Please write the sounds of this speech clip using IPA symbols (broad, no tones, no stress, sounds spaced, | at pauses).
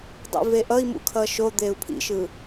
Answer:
dˤ ḭ v e ʔ ʌ i̯ m ṵ kʰ ʌ ʃ o d̪ e u̯ pʰ ḭ ʃ ɯ